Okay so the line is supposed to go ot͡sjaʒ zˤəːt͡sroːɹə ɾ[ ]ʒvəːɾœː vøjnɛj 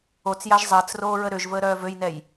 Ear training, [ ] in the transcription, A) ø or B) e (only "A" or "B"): A